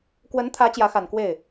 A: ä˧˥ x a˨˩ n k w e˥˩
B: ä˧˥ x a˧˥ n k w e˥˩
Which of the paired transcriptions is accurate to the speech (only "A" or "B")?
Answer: A